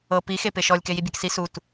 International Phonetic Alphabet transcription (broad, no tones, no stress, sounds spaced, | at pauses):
ɤ p i x e p e ʃ ɔ lʲ k e j i bʲ a k s i s u t